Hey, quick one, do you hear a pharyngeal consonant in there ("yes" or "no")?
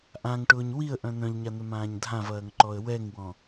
no